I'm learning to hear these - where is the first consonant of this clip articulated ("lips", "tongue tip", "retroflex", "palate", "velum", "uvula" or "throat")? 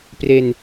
lips